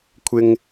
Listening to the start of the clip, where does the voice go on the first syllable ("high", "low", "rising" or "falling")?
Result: high